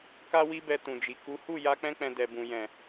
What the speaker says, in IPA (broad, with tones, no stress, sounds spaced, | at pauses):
k a˦ w i˦ b ɛ˧ t ũ˨ d͡ʒ i˨ k u˨˦ h u˦˨ j a˧ k͡p ɛ̃˧ k͡p ɛ̃˨ d ɛ˨ b ũ˨ j ɛ̃˨